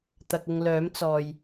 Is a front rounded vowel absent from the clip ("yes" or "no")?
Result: no